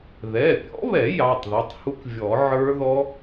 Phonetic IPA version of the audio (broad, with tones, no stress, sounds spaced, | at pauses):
ð ɛ˩˧˩ pʲ ɔ̰˦˥ β ɛ˨˩˦ j ɑ˩˧˩ tˤ ð ɛ˩˧˩ tˤ h u˦˥ k vʲ ɔ˨˩˦ ʕ ə˞˦˥ ð ɔ˦˥